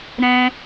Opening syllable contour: high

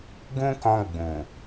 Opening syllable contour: high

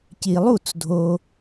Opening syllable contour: low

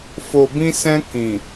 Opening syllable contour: low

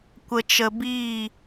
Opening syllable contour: low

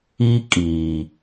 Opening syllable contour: high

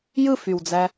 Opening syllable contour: falling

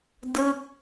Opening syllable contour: falling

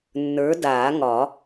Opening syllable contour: rising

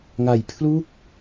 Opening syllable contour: low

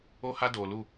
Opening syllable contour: high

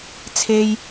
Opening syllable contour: high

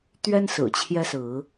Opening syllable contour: high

